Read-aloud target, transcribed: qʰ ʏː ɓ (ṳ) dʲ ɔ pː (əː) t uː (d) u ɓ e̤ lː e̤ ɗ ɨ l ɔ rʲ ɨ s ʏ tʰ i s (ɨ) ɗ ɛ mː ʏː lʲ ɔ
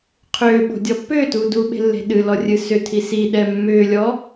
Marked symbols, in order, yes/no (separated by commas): no, no, yes, no